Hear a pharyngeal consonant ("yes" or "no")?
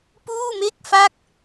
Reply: no